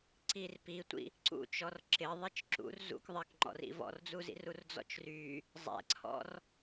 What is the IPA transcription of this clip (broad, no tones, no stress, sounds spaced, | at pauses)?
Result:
ǀ i r p i tʷ ḭ | ǀ ṵ t͡ʃ ɔ r ǁ ɪ ðˤ i t͡ʃ ǁ ṵ r z ṵ k ðˤ ɪ k ŋ͡ǃ ɔ̰ r ḭ v ɔ̰ r d͡z u z ḭ r u r d͡z ɔ̰ t͡ʃ r y | zˤ ɛ̰ ǀʰ ɔ̰ r